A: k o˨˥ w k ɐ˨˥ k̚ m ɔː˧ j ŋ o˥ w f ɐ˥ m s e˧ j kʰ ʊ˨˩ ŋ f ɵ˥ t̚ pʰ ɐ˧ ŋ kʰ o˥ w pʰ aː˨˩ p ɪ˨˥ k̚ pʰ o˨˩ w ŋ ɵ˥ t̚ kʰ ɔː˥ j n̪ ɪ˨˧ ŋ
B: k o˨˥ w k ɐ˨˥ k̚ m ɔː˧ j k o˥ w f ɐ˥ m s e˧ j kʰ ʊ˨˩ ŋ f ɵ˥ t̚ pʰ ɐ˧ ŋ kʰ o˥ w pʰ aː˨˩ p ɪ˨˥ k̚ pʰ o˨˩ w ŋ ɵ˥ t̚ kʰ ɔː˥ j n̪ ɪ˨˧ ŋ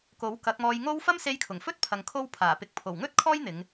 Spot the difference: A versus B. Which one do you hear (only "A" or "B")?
A